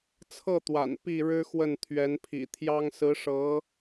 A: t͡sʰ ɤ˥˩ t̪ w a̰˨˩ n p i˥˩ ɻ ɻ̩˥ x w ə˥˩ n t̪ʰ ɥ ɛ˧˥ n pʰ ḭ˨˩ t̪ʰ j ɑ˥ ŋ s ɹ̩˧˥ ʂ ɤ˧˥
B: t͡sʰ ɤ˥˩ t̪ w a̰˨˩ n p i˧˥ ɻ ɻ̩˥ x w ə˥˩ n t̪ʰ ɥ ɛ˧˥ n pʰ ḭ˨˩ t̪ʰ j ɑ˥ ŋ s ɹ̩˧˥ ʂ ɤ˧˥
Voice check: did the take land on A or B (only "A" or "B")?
A